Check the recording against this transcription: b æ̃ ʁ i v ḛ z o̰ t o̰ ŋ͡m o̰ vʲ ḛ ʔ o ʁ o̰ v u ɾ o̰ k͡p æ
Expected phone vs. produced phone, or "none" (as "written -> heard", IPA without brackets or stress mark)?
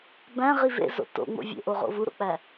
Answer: none